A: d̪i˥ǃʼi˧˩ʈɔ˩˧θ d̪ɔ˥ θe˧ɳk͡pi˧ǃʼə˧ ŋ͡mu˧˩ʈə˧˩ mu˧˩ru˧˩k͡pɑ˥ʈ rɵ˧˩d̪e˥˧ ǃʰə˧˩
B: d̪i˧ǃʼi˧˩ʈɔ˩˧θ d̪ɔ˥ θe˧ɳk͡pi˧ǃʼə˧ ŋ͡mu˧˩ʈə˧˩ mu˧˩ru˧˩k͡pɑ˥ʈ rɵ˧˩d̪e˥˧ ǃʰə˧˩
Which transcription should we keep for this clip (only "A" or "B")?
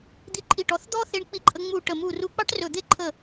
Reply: B